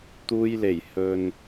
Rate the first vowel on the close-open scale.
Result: close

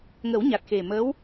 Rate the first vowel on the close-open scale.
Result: mid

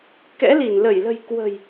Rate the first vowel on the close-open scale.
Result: mid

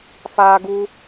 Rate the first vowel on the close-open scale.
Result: open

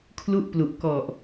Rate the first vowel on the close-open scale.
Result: close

